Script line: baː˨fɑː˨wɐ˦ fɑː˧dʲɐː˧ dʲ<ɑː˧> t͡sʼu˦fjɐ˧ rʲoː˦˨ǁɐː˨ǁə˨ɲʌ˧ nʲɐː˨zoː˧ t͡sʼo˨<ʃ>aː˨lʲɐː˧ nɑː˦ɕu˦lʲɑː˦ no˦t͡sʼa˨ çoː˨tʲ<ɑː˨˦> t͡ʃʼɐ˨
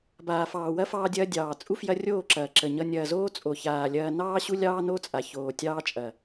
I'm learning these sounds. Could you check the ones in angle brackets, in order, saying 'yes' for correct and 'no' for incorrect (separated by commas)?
no, no, no